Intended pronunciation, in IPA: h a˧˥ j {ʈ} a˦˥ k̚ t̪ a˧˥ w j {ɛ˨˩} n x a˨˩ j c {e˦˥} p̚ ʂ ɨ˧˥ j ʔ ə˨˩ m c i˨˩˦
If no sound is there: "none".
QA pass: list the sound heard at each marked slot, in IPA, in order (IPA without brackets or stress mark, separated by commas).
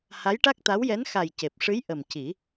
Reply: ʈ, ɛ˧˥, e˨˩